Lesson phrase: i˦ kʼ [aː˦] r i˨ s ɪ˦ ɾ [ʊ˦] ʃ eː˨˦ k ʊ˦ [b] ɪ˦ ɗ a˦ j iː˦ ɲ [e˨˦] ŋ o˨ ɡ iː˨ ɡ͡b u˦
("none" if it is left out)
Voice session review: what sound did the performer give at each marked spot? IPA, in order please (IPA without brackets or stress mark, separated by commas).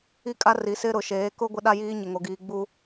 a˦, ʊ˨, ɡʷ, e˨